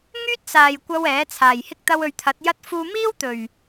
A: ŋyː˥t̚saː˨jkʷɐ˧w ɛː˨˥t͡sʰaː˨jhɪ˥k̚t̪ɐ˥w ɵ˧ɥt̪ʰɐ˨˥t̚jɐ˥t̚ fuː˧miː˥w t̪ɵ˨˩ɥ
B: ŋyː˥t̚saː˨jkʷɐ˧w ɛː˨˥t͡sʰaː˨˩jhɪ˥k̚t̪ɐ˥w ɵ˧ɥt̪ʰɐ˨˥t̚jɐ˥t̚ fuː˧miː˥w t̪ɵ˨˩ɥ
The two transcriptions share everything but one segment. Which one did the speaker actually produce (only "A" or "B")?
A